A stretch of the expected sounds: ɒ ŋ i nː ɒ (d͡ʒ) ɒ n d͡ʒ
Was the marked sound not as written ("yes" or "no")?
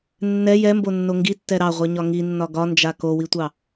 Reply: yes